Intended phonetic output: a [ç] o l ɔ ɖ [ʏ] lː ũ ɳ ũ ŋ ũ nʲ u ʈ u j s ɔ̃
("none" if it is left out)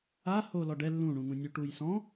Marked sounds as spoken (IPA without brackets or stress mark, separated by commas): h, ɛ